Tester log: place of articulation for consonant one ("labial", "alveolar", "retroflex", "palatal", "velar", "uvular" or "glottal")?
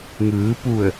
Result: velar